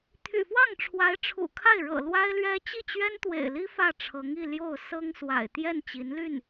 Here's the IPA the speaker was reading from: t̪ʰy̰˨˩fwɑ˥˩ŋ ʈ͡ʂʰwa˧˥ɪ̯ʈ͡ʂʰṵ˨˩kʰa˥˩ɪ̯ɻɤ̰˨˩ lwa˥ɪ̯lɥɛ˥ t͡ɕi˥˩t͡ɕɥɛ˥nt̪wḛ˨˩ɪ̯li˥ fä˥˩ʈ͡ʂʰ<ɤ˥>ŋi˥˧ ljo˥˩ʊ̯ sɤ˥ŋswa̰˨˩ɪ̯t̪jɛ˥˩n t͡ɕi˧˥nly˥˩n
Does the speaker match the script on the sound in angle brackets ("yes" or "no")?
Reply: no